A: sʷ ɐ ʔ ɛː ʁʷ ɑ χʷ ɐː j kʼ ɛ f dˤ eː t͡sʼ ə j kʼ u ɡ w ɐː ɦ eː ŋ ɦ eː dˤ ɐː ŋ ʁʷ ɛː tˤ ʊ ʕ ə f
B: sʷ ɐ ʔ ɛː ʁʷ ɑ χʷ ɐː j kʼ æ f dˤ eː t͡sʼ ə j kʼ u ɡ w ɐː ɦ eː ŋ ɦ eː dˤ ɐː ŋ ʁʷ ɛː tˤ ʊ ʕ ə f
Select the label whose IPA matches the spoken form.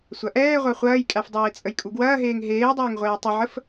B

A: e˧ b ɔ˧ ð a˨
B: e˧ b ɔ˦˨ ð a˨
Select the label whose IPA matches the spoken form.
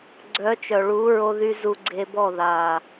B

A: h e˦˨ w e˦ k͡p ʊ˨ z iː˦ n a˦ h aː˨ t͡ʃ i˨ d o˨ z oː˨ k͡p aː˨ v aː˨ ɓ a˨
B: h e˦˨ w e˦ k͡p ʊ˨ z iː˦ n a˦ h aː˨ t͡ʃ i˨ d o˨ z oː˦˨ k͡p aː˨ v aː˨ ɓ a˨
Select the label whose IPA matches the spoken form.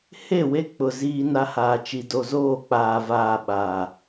B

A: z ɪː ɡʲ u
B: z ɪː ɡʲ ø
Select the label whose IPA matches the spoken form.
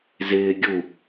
A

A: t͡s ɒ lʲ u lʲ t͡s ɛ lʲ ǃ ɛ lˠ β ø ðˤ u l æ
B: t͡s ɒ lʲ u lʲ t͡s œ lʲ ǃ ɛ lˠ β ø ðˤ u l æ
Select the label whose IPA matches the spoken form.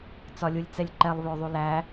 A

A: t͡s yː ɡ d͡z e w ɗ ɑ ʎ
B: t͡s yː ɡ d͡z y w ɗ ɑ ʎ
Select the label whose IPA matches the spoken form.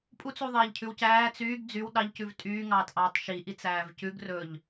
B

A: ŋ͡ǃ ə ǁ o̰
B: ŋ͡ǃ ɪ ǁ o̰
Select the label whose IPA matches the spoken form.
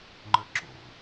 A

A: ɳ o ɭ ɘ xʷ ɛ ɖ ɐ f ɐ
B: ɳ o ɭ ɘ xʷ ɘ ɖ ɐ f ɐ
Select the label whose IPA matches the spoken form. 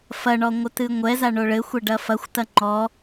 A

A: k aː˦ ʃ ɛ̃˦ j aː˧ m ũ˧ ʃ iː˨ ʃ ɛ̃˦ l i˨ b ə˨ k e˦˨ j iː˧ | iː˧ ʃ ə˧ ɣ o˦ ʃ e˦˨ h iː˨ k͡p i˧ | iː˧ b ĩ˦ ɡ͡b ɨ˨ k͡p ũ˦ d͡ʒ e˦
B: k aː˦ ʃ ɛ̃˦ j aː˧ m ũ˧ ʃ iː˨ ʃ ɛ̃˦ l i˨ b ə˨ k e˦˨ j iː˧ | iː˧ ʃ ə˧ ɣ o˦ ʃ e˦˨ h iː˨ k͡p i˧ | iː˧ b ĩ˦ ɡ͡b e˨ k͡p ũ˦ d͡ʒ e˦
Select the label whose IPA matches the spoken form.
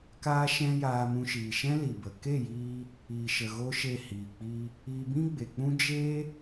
B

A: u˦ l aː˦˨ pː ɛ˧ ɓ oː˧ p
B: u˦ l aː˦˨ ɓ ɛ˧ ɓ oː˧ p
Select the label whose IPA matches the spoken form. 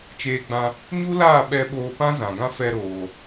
B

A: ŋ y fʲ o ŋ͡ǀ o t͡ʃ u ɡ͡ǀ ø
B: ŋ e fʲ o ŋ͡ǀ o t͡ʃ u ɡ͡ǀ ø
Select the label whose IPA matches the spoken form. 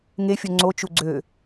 B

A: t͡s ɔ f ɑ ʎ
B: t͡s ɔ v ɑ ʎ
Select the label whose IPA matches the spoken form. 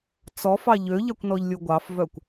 A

